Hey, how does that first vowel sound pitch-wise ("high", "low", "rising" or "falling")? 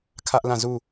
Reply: high